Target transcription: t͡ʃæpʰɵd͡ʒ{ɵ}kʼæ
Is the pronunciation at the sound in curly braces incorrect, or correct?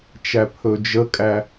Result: incorrect